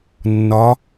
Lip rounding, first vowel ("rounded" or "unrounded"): rounded